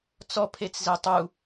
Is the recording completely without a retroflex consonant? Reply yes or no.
yes